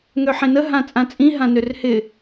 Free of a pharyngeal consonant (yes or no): no